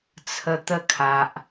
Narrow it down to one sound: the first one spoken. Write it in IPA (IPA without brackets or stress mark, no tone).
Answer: t͡sʰ